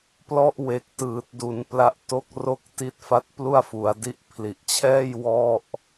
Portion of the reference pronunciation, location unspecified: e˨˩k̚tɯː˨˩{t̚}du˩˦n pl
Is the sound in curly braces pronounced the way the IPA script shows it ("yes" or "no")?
yes